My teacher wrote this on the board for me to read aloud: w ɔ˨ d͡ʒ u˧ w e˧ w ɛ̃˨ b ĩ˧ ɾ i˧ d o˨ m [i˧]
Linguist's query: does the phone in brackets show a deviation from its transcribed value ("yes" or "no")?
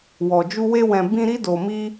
no